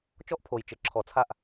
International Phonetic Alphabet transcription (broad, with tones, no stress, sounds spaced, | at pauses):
t͡ʃ ɔ˦ ʔ pʰ o˨ j t͡ʃ ɘ˨ ǁʰ ɔ˨ t͡sʰ a˦˨ ʔ